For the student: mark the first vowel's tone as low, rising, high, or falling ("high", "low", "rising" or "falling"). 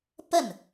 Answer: falling